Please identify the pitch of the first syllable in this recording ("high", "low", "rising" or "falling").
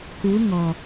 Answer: rising